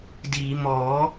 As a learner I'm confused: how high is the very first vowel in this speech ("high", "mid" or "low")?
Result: high